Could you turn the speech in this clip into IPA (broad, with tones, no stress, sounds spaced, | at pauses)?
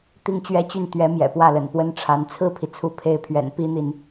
t̪ i˥˩ ŋ t͡ɕ ɥ ɛ˥ t͡ɕ y˥˩ n t̪ ɥ ɛ˧˥ m j ɛ̰˨˩ p w ä˥˩ l ə̰˨˩ n p w ə˥ n ʈ͡ʂʰ a˧˥ n t͡sʰ ɹ̩˥˩ pʰ i˩ t͡sʰ u˧˥ pʰ e˧˥ ɪ̯ pʰ ɥ ɛ̰˨˩ n p i˥ n̪ i˨ n